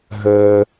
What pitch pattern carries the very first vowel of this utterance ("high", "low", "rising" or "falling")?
high